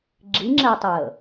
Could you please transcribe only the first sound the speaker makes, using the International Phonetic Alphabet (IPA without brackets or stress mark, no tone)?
ɡ͡ǁ